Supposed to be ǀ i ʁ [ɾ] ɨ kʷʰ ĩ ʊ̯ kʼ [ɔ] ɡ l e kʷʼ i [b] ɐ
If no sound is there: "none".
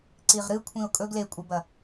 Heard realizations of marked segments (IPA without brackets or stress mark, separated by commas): ɾ, ɵ, b